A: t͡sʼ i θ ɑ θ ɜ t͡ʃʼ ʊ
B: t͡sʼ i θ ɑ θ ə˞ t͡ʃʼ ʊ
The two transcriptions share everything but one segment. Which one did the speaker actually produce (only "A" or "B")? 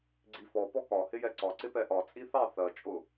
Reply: A